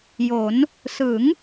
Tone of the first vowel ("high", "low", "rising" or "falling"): rising